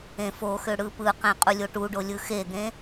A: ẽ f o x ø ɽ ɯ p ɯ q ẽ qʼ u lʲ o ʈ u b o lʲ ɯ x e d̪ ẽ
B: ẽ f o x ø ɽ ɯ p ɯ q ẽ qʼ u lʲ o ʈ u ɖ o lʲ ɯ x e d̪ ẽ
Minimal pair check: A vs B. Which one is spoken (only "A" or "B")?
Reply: B